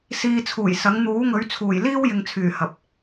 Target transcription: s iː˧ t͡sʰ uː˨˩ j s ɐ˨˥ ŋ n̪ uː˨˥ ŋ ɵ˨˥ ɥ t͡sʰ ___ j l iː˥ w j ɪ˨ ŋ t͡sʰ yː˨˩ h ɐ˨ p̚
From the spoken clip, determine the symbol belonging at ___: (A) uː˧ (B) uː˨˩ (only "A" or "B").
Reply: B